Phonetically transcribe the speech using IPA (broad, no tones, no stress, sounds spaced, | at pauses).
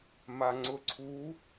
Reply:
m a ŋ͡ǀ ʊ ǀʰ u